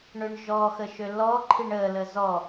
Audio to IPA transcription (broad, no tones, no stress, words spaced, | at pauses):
ɳøɳʒɔxə ʃølɔǃʰiɳ ə ləzɔ